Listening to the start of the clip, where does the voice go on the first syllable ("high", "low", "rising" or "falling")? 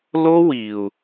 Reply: high